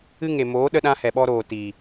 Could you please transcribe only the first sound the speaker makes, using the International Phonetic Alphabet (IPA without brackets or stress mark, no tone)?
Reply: ɨ